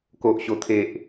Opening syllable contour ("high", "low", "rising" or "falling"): low